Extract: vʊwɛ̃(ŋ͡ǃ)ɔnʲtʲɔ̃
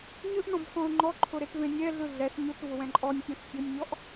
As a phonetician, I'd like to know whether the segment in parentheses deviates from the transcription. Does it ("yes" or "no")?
yes